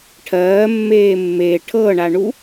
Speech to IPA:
ʈʰ ɜː mː eː mː e ʈʰ ɤ ɳ a ɳ u

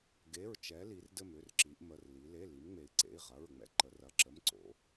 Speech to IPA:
ɡ e˩˧˩ ɹ t͡ʃ ɛ˩˧ l i˩˧ r d ɘ˧˩ m ʏ˩˧˩ r ǁ i˩˧ ʔ m ə˩˧˩ r l i˩˧ l e˩˧˩ l i˩˧ m ŋ͡m e˩˧ i̯ ǀ ḛ˩˧˩ i̯ ʁ ɐ˩˧˩ ɹ ŋ͡m ɛ̰˧˩ ǃ ə˩˧ r ɐ˩˧˩ ǁ ə˩˧˩ m ǀ o̰˩˧

